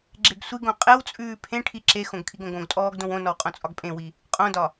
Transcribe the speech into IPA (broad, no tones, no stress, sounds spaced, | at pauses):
ɡ͡ǁ e ɡ sʷ i ɡ õ qʼ e w t͡sʼ ʉː pʰ ẽ ʈʰ i ǁ e x õ ɡ kʰ i ɡ õ ɡ õ ɡ tʼ ɔː ɡ d õ w õ n ɔ w qʼ õ t͡sʼ ɒ ɡ pʼ ẽ w i | qʼ õ d ɒ